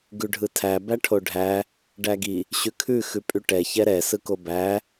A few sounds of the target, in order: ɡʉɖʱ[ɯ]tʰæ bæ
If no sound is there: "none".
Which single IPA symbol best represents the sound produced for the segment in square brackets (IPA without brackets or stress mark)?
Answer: ɯ